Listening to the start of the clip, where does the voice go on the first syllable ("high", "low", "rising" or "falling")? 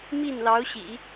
falling